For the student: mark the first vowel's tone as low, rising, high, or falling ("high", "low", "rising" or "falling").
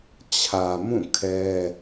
low